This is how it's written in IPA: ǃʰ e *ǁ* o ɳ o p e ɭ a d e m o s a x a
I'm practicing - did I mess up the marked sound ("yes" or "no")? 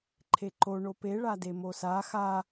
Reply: yes